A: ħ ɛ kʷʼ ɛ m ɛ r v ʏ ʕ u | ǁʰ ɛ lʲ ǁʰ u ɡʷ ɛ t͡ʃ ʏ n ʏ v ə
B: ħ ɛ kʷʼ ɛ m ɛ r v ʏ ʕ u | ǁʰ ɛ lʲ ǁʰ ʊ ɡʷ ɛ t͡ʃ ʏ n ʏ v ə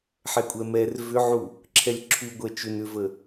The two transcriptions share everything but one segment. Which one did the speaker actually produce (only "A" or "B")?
A